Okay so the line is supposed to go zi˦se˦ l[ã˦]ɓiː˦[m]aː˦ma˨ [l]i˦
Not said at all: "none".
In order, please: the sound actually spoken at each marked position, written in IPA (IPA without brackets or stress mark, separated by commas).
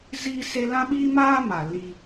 ã˦, m, l